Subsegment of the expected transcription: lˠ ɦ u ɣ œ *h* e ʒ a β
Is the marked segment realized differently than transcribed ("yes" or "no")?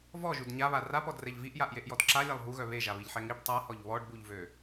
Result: yes